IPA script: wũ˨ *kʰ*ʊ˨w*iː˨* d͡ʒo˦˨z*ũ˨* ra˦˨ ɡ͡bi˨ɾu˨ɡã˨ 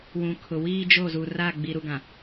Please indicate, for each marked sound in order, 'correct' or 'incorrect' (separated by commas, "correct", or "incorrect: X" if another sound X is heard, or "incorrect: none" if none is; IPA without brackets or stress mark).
correct, incorrect: iː˦, incorrect: u˨